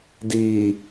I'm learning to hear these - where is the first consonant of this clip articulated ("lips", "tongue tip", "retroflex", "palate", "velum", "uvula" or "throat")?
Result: tongue tip